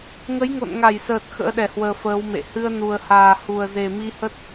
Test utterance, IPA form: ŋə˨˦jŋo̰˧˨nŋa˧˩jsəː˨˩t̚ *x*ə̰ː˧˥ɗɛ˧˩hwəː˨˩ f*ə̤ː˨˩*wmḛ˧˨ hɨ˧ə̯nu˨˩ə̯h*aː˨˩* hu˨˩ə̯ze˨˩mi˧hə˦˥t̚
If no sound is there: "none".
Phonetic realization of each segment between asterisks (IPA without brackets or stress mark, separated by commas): x, əː˨˦, aː˨˩